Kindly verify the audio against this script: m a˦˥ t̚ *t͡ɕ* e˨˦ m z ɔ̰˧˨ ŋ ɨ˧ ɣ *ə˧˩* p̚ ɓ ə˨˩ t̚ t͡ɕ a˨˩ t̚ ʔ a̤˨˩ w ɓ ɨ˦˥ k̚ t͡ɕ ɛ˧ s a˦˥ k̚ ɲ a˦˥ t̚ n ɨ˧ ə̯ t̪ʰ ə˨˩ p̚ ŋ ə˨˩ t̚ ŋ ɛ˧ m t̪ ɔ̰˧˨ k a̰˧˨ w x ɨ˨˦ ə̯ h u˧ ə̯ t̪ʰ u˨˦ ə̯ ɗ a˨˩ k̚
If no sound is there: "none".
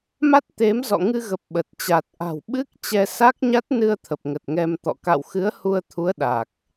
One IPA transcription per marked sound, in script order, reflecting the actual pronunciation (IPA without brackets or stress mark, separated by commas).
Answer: t̪, ə˨˩